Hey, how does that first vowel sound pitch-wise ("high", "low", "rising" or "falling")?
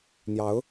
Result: rising